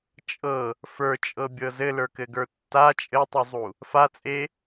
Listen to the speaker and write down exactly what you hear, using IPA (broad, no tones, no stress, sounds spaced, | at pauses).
t͡ʃʼ ɤ | f ə˞ t͡ʃʼ ɤ bʲ ɤ z ɘ l ə˞ k ɘ ɡ ə˞ tː a t͡ʃʼ ɘ tˤ u zˤ u | f a t͡sʼ e